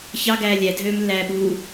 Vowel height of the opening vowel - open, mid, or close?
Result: open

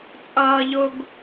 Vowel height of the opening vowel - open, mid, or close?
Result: mid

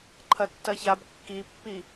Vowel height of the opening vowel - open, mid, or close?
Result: open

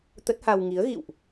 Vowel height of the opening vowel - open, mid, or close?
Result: mid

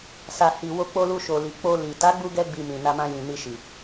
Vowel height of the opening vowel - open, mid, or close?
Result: open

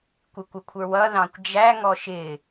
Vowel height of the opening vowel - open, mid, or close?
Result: close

